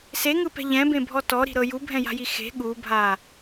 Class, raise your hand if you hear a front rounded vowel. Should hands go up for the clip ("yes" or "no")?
no